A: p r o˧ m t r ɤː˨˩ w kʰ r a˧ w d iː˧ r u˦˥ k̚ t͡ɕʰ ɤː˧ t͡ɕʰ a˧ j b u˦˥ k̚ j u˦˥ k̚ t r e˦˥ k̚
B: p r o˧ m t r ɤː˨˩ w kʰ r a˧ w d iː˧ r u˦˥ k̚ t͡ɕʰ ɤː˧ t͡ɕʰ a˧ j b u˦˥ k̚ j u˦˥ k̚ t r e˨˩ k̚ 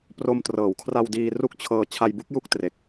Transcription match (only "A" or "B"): B